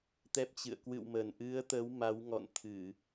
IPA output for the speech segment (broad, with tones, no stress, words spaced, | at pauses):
t̪ɛ˦˥p̚t͡ɕɨ̰˧˨ə̯ kwɨ̰˧˨wmə˨˩n ʔɨ˨˦ə̯t̪ə˨˦w ma˨˦wŋɔ̰˧˨nt̪ʰɨ˧˩˨